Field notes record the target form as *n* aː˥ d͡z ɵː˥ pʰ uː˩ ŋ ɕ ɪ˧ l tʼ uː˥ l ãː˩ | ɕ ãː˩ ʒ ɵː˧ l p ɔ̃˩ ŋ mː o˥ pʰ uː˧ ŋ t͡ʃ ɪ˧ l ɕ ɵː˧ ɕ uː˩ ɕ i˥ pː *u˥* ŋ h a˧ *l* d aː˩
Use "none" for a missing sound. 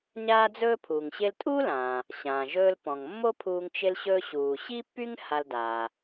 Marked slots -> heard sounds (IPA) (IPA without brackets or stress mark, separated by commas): ɲ, y˥, l